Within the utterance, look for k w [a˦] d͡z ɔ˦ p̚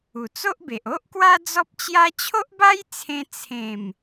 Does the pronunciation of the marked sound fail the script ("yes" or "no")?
no